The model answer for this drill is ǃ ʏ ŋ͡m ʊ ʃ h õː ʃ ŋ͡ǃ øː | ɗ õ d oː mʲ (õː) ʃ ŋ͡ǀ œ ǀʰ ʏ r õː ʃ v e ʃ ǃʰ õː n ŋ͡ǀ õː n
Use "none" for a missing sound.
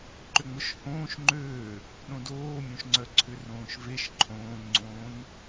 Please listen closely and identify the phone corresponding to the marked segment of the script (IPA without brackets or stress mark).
õ